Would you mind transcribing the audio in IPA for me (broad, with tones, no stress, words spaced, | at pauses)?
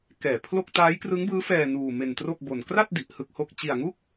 kɛː˨˩pʰlo˥˩k̚ taː˦˥jkrɯ˦˥ŋbɯː˦˥fɛː˧ nuː˧ me˧ntro˥˩k̚bo˧n kra˥˩t̚di˨˩ʔ hɯ˥˩k̚ho˥˩k̚ t͡ɕi˧a̯ŋu˥˩k̚